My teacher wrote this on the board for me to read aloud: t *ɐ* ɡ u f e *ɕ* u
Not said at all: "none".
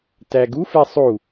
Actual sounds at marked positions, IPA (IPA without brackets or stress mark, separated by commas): æ, sˤ